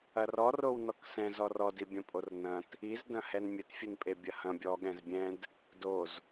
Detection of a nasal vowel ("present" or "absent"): present